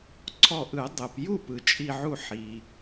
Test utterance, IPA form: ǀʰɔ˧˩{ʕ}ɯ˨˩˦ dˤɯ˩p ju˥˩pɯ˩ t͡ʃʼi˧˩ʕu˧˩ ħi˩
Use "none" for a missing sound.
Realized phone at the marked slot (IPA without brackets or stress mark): ʔ